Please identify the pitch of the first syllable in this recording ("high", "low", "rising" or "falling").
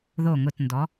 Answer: low